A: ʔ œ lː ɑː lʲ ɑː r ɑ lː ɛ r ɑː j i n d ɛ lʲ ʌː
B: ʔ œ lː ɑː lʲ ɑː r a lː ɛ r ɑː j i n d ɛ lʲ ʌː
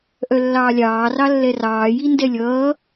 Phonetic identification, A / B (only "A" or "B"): A